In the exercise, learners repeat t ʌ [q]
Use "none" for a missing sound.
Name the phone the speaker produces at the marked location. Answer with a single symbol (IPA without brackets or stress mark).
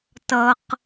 q